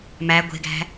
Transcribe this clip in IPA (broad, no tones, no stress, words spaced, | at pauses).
mæ ɡʷe̤ɡæ̤